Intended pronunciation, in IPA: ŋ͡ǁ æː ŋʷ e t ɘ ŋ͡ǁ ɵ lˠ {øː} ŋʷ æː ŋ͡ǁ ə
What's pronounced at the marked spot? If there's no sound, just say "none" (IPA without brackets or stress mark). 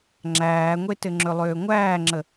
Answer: øː